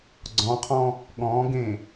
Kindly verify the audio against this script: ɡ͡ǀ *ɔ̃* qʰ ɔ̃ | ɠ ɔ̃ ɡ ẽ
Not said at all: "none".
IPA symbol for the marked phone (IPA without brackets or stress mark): ɔ̃